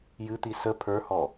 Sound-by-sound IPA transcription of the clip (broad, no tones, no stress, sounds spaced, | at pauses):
j ɨ t̪ i s ə pʰ ə˞ h ɔ